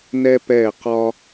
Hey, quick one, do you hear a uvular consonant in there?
yes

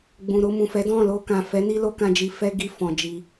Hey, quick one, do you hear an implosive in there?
no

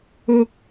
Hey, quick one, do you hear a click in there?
no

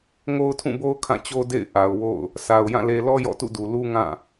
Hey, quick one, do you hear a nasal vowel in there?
yes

